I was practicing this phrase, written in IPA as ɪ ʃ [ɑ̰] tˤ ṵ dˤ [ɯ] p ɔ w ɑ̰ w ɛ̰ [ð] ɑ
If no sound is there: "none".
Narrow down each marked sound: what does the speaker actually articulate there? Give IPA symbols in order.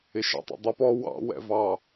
ɑ̰, u, v

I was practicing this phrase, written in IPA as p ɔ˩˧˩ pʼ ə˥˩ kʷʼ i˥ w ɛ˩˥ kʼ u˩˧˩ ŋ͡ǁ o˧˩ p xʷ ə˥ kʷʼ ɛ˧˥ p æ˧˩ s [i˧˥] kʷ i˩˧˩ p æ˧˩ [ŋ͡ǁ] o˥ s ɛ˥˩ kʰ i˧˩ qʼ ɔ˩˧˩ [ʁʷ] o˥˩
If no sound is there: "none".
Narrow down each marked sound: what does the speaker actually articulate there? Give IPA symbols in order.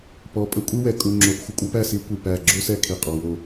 i˧˥, ɡ͡ǁ, w

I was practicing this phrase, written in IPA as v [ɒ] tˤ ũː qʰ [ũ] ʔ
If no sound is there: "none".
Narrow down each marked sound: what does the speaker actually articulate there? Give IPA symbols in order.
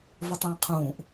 ɒ, ũː

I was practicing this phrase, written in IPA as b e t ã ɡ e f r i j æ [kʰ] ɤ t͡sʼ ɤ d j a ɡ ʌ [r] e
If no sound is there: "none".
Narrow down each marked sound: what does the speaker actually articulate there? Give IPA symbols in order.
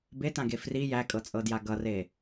kʼ, r

